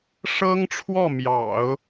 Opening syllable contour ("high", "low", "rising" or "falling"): high